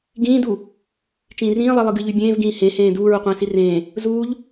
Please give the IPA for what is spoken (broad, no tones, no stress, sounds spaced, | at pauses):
ɡ ĩː d u | t͡ʃ ĩː r ĩː lˠ i lˠ ɨ ɡ ɨ ʎ y bʲ ẽː v ɡ ĩː h ẽ h ẽː d uː ɹ u qʷ ẽː s i r ẽː | z uː ʎ